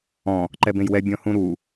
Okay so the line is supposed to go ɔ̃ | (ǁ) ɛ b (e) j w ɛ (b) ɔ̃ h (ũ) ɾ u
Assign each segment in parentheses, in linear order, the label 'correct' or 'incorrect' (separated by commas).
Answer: incorrect, incorrect, incorrect, correct